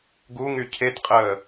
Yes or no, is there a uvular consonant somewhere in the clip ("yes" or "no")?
yes